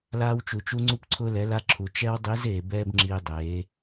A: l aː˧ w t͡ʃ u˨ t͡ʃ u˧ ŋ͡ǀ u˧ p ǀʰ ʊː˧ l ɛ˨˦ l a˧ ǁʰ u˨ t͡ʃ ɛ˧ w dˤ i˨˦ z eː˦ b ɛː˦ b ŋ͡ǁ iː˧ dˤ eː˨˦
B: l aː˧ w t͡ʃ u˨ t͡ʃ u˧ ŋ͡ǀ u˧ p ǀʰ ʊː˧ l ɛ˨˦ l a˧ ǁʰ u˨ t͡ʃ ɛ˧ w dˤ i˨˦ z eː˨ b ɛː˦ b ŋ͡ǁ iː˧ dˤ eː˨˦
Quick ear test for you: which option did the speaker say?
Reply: B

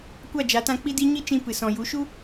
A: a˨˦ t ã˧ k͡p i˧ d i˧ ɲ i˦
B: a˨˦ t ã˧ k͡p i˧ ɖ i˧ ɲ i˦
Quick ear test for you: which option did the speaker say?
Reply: A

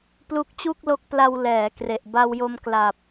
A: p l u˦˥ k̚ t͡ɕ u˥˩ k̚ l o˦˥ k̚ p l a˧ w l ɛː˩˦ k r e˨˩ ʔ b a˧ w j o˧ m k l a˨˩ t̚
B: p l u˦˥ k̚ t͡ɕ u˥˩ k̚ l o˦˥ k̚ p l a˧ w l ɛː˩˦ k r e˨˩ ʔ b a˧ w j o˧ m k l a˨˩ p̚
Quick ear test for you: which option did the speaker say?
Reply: B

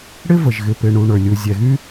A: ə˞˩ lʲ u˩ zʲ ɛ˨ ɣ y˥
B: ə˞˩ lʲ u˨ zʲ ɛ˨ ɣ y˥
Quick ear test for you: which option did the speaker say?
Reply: B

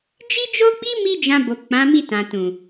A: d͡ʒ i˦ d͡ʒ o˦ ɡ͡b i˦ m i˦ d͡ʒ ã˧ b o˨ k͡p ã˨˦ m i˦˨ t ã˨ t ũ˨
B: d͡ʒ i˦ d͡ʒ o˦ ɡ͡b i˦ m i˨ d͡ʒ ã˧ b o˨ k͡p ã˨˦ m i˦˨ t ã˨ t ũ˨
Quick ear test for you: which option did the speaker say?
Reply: A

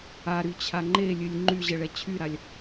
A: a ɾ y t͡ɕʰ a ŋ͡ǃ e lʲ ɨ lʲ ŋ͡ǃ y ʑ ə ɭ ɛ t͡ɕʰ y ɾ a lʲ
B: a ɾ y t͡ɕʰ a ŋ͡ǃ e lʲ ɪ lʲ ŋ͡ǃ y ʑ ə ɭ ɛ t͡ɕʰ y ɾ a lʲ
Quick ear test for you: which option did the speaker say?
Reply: A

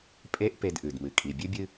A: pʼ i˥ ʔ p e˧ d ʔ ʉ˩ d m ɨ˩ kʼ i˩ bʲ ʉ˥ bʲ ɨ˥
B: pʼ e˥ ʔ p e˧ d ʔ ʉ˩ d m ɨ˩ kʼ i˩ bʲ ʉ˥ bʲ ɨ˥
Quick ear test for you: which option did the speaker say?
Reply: B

